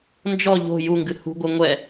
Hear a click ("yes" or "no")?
no